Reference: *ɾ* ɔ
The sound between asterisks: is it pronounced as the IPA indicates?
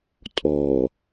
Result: no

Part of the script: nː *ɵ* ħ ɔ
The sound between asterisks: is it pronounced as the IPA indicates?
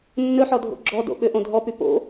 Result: yes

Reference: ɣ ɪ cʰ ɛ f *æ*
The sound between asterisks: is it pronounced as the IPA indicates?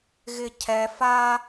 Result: no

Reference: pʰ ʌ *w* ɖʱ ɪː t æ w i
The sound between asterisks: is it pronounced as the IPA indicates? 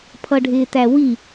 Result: no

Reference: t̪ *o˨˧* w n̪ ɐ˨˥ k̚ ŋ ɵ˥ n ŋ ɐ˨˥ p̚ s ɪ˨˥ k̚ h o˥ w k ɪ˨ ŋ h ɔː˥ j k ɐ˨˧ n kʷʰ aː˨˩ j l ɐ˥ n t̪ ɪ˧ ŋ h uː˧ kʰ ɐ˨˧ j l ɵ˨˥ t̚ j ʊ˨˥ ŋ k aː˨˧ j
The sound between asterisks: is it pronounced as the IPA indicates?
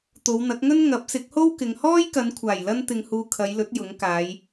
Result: yes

